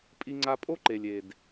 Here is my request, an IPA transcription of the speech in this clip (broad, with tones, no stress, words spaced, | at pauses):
pʼi˧ŋ͡ǀa˧pʼo˦ ǃe˨lʲe˨d